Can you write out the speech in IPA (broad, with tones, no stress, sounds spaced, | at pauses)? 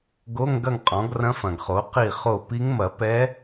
ɡ o˧˥˧ ŋ ɡ ɐ˥˩ ŋ qʼ ɔ̃˩˥ ɡ r ɐ̃˧˥ f ɐ̃˨ ɡ χ o˩˥ q i˥˩ χ o˥˩ p i˧˥ ŋ m ɐ˨˩˦ p ɛ˧˥